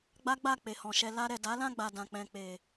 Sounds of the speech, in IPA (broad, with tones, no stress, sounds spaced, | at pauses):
ɡ͡b a˦ ɡ͡b a˦˨ k͡p e˨ h ɔ̃˨ ʃ ɛ˧ l a˧ ɾ ɛ˨ d a˨˦ l ã˦˨ ɡ͡b a˨ d ã˨ k͡p ɛ̃˨ k͡p e˨